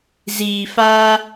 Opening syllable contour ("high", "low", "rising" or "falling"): low